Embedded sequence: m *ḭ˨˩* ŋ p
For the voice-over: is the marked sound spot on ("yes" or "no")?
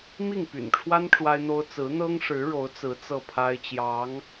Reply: no